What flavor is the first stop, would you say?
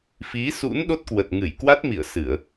implosive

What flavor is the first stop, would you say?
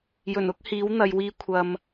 plain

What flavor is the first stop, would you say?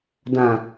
plain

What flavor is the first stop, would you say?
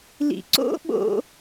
click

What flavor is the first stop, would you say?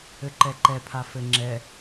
click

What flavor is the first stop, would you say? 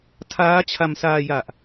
aspirated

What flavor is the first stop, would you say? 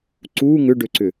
click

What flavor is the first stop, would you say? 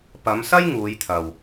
plain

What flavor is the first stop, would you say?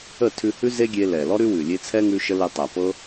aspirated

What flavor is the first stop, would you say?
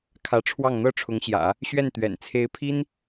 aspirated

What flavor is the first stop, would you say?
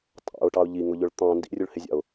ejective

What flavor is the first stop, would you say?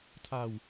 aspirated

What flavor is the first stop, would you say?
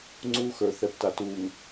click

